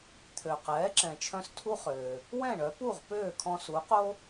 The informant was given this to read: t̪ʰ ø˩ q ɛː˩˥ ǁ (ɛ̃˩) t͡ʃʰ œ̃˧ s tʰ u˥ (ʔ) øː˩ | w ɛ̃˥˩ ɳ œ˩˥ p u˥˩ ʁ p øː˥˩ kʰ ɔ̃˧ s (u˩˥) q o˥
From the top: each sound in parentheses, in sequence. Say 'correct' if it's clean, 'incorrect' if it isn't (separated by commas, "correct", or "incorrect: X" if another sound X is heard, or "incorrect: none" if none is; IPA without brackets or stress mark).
correct, incorrect: χ, correct